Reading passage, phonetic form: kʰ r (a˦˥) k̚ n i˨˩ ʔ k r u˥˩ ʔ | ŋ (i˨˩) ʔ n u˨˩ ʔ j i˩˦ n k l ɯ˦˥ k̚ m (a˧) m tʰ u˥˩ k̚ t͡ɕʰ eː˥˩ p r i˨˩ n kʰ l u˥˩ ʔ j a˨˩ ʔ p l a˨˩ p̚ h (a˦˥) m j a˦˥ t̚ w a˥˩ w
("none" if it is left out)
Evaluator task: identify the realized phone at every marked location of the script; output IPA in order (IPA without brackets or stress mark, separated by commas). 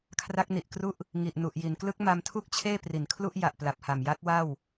a˦˥, i˨˩, a˧, a˨˩